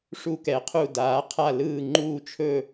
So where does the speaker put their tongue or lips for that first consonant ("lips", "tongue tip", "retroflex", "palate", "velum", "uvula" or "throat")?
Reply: retroflex